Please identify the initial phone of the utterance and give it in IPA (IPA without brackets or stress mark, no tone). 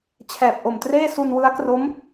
t͡ɕʰ